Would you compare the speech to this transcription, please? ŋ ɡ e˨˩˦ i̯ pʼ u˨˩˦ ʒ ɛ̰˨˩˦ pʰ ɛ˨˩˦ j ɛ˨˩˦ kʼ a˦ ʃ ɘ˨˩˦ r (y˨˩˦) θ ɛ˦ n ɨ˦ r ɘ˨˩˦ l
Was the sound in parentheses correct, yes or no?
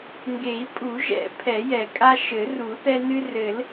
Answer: no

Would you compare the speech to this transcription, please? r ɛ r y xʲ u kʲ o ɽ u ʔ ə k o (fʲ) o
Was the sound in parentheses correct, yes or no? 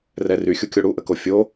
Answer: yes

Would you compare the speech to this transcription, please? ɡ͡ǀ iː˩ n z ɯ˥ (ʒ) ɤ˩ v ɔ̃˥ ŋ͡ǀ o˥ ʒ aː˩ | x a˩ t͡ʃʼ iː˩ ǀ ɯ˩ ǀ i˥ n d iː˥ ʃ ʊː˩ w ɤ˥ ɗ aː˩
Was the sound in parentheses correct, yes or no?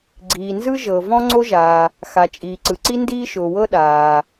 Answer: yes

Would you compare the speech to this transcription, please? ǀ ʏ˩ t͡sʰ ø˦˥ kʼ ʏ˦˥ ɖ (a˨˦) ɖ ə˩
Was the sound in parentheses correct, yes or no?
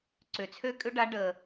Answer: yes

